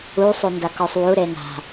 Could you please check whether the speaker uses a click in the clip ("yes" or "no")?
no